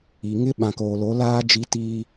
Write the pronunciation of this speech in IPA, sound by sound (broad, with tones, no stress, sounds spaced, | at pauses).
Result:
i˨ ŋ ɪ˦ ɓ ã˨ k oː˨ l o˨˦ l aː˦ d͡ʒ i˦ t iː˦